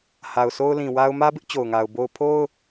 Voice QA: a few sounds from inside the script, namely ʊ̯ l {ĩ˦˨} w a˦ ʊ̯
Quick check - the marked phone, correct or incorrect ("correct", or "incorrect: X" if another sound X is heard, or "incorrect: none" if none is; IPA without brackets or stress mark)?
incorrect: ĩ˨